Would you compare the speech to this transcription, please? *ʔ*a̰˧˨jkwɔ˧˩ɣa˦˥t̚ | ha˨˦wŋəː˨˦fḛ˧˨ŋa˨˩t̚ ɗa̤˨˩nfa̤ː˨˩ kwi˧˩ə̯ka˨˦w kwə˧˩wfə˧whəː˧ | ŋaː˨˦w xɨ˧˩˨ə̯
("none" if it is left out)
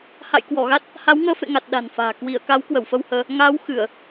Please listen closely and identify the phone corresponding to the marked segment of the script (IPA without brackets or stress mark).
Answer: h